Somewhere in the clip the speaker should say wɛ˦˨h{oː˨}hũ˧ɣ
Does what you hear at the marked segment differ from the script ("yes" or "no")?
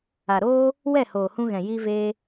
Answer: no